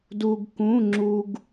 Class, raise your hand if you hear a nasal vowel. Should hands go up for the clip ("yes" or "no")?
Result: yes